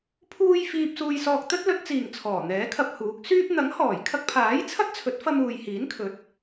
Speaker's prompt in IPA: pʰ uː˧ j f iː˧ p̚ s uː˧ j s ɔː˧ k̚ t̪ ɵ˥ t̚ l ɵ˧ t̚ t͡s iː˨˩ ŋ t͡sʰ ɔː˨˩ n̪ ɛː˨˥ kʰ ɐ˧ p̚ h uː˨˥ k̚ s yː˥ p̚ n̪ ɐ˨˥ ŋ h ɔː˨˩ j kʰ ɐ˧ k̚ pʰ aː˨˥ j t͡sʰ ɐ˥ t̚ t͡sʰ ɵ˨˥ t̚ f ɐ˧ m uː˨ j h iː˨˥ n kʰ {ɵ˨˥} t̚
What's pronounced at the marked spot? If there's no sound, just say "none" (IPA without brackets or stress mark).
ɵ˨˥